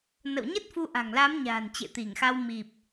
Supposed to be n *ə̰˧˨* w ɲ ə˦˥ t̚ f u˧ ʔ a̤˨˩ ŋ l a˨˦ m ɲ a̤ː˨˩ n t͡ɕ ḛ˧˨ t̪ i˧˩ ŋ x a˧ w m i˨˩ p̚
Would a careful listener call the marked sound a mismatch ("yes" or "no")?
no